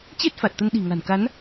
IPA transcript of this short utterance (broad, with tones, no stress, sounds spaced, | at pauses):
t͡ɕ e˦˥ t̚ f a˨˩ t̚ t̪ ə˧ n ɗ i̤˨˩ ŋ a̤˨˩ n k a˨˦ n